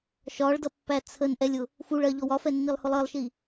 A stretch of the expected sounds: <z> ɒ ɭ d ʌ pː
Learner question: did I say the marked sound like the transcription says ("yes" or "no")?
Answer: no